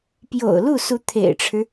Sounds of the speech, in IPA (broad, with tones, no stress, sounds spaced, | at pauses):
p j o̰˨˩ ʊ̯ l u˥˩ s u˧˥ t̪ʰ ḛ˨˩ ɪ̯ ʈ͡ʂʰ ɻ̩˦